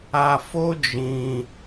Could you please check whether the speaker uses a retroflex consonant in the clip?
no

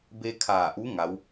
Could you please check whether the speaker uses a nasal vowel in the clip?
no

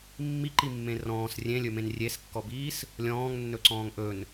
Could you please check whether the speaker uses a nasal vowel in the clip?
yes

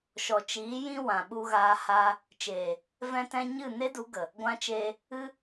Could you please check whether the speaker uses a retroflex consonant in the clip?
no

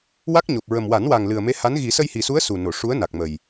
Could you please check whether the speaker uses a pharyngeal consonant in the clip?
no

